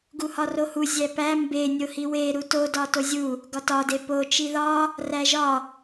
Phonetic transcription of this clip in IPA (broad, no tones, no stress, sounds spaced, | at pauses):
ɡ u h ɒ r o h u zʲ æ p æ m b e nʲ o h i w e ɾ u t o d ɒ t o zʲ u | ɡ ɒ t ɒ d e p o t͡ʃ i ð ɒ | r æ ʒ ɒ